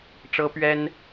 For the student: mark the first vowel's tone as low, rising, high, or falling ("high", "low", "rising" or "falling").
high